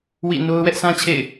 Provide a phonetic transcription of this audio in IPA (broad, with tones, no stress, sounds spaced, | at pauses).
w ḭ˦˨ n o˦ ʊ̯ w ɛ˦ ʔ s ã˦ t͡ɕʰ ḛ˦˨ ɪ̯